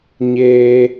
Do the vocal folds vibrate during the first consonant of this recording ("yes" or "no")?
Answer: yes